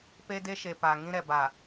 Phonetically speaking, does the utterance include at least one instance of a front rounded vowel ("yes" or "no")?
no